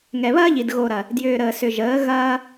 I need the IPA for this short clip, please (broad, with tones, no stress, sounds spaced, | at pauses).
ŋ ɛ˨ β ɐː˦ ʎ i˨ d ɣ o˨ ɾ ɐ˨ | d j ʏː˨ ɾ əː˨ s ʏ˨ ʒ əː˨˦ ɣ ɐː˧